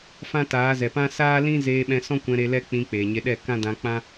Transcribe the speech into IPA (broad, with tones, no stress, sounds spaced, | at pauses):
f ã˦ t aː˨˦ z ɛ˨ p ã˦ s aː˦ l ĩ˦ z eː˧ ɓ ɛ̃˧ s ɔ̃˦ kʷ ɛ̃˧ ɾ e˧ l ɛ˦ k͡p ĩ˧ k͡p eː˨ ɲ e˧ ɗ ɛ˦˨ k ã˦ d ã˧ k͡p ã˦